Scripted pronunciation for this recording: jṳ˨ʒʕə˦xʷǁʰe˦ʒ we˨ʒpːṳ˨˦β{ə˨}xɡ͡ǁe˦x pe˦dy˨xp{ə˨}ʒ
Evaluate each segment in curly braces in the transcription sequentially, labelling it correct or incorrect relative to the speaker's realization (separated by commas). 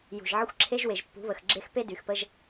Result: correct, incorrect